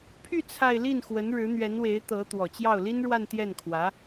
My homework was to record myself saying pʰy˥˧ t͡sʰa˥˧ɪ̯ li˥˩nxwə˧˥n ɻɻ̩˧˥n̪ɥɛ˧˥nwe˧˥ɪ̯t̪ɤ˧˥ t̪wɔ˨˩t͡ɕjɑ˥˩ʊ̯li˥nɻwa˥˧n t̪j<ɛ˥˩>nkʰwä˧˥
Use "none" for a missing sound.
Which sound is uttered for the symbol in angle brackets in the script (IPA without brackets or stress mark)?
ɛ˥˩